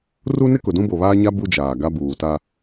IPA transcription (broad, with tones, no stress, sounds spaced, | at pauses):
r u˦ n ɪ˦ k ʊ˨ d ũ˦ b o˨ β aː˦ ɲ a˦ b u˦ d͡ʒ aː˨ ɡ a˦ b uː˨ t a˦